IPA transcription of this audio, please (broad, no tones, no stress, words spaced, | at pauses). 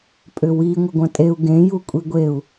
pʼʏwi ŋʷɘɡʷɐ̃tʼeu̯ ɡẽ jukʷʼiɡʷeu̯